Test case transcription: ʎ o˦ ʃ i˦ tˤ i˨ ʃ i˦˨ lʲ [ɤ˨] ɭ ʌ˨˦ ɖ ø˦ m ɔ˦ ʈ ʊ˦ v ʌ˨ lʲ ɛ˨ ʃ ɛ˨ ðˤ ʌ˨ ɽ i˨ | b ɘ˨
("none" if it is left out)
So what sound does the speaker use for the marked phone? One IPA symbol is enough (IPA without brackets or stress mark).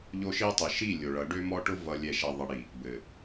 o˨